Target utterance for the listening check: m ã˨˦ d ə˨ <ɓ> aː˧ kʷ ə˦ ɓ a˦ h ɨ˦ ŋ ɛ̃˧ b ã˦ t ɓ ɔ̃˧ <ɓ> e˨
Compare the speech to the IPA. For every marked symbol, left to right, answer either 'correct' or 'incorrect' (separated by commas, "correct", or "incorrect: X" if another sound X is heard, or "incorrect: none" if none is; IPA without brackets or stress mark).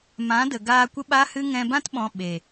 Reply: incorrect: ɡ, correct